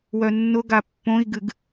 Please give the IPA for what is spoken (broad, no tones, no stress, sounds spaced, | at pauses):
w œ nː ʊ ɡ a pː õ i̯ ɡ ɨ ɡ